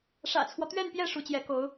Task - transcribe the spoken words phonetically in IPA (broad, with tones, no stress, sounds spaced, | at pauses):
ʂ ä̰˨˩ t͡sʰ w ɔ˦ t̪ ɥ ɛ˥˧ n p j ɛ˥˩ ʂ u˧˥ t͡ɕ j ɛ˧˥ k o˧˥ ʊ̯